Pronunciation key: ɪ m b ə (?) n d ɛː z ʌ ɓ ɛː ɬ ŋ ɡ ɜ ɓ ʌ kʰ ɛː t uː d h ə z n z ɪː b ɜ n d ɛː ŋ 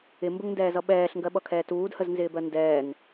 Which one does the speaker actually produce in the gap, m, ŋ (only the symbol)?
ŋ